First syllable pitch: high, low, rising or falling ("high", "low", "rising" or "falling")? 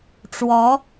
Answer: rising